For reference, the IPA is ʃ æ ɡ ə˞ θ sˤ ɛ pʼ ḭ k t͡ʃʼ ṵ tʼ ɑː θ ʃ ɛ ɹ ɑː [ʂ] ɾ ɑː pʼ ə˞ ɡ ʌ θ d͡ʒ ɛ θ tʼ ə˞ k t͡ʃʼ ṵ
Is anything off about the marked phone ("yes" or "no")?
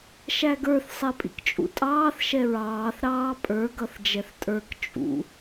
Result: yes